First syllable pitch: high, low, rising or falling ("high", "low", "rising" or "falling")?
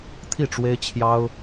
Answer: falling